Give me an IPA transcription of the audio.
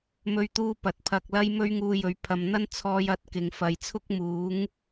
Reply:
m ɵ˧ ɥ t̪ uː˧ p ɐ˨ t̚ pʰ ɐ˧ k̚ l ɐ˥ j m ɵ˥ ɥ ŋ uː˧ j ɵ˨˥ ɥ pʰ ɐ˨ m n̪ ɐ˥ n t͡sʰ ɔː˧ j ɐ˨˥ t̚ k ɪ˨ ŋ f ɐ˨ j t͡sʰ ʊ˥ k̚ m uː˨˥ ŋ

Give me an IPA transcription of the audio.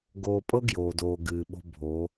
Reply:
ɡ oː˨ pʼ ɤ˦ ɡ j oː˨ d oː˨ ɡ ɨː˨ ɓ o̤˦ bʱ o˨˦

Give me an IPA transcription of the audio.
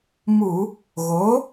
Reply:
m u˧˩˧ | ɣ o˩˥

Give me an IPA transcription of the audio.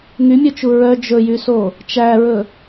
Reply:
ŋ y mʲ ɵ t͡ʃ u ɹ œ d͡ʒ ɵ j y s o | t͡ʃ æ ɹ ɵ

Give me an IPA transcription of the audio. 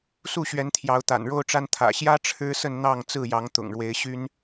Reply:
s u˥˨ ɕ ɥ ɛ˨˦ n t̪ʰ j ɑ˨˦ ʊ̯ t̪ a̰˨˩ n ɻ o˦ ʊ̯ ʈ͡ʂ a˦ n t̪ʰ ä̰˨˩ ɕ j ä˦ ʈ͡ʂʰ ɻ̩˦ s ə˥˨ n n̪ ɑ˥˨ ŋ t͡s ɹ̩˥˨ j ɑ˨˦ ŋ t̪ ʊ̰˨˩ ŋ ɻ w e˨˦ ɪ̯ ɕ y˦ n

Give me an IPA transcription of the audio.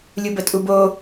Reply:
lʲ u b ə tʼ u b o

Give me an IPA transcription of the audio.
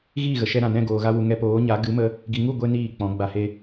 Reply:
ɣ iː˦˨ ɣ ə˨ ʃ ɛ˧ ɾ ã˨ n ɛ̃˦˨ ɡ oː˨ ɣ a˧ w u˨ ŋ ɛ˧ p oː˨˦ ɲ a˨˦ ɡ ɨ˨˦ m ə˧ | ɡ i˨ ŋ u˦˨ ɡʷ e˦ n iː˦˨ k͡p ɔ̃˨˦ ɡ͡b a˧ h e˦

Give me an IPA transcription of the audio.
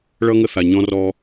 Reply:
ɭ ʌ˦ ŋ ə˦˨ θ a˨ ɲ ɔ̃˦ r ɔ˦

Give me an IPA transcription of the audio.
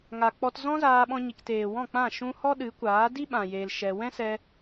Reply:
ŋ a˨ k͡p ɔ˧ t z ɔ̃˦ z aː˧ ɓ ɔ̃˧ ɲ i˨ k t eː˨ w ɔ̃˦˨ k͡p ã˦˨ ʃ ũ˧ h ɔ˦ ɗ ɨ˨˦ kʷ aː˨˦ d i˦ ɓ ã˨ j eː˧ l ʃ ɛ˧ w ɛ̃˦ s ɛ˧

